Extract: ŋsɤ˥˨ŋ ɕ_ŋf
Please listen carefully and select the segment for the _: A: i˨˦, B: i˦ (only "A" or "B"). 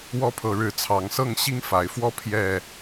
B